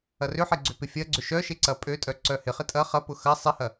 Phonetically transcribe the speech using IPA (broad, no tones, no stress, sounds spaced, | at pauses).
ɐ r ʏ ħ e ɡ͡ǀ ʏ p ɪ fʲ ɐ ɡ͡ǀ ʏ ʃ œ ʃ e ǀ ɐ pʼ ø tʼ œ ǀ œ h ɪ χ ɪ tʼ ɐ χ ɐ p ʊ x ɐ sˤ ɪ h ɐ